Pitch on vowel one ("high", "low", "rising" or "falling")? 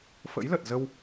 rising